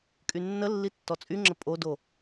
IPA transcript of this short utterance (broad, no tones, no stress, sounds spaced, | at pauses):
kʼ y nː ə lː i tː ɔ t͡sʼ y ŋ͡ǁ ə pʼ o d o